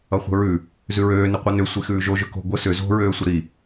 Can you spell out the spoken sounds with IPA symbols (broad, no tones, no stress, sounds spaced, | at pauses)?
ʌ χʷ ə̤ ɹ ʉ | z ʉ ɹ øː n ʏ qʷ ʌ n ʏ sʷ i x ʉː ʒ o ʒ ʏ k o̤ ɡʷ ə s ʏ z o̤ ɹ øː sʷ ə ɾ i